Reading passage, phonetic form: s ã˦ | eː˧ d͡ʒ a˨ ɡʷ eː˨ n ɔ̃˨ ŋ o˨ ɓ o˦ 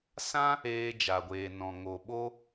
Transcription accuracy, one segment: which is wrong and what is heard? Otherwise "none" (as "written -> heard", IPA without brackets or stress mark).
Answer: none